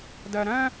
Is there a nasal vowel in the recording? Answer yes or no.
yes